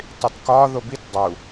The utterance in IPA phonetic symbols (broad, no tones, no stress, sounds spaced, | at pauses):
tˤ i t k ɒ ð o b i t dˤ u